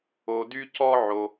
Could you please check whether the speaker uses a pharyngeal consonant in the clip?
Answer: yes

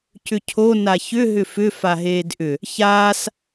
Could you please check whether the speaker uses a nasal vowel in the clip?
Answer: no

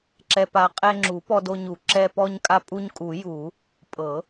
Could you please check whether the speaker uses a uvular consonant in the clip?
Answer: yes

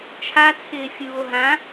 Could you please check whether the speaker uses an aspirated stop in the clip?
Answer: yes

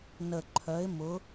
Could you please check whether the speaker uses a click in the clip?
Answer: yes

